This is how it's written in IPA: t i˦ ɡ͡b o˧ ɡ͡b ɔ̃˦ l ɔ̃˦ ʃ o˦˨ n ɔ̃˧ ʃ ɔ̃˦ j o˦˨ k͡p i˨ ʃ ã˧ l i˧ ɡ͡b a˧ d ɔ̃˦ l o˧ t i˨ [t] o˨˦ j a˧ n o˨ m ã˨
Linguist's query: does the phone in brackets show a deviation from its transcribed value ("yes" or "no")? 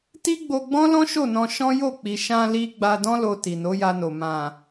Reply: yes